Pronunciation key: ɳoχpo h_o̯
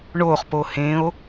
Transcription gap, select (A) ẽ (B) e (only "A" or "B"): A